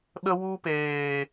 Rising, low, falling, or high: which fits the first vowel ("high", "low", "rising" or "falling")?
high